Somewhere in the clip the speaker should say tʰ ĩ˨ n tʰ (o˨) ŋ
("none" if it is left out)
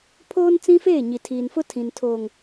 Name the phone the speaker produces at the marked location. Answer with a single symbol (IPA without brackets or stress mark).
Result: oː˨